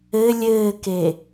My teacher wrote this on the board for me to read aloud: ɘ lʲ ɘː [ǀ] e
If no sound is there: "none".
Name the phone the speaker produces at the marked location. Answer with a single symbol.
k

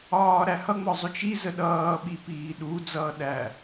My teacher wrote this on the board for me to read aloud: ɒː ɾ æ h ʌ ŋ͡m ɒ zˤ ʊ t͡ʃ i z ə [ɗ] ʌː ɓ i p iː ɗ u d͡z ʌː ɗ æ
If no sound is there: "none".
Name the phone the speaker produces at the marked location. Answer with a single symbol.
ɗ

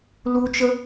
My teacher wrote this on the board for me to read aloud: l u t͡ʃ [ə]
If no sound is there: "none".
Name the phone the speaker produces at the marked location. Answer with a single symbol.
ə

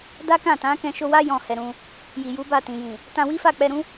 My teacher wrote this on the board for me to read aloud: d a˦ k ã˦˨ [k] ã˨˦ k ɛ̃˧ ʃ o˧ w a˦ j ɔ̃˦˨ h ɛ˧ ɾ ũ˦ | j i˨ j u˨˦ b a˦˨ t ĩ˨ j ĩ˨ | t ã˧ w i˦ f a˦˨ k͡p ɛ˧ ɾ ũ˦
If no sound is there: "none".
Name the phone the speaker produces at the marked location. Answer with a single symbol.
t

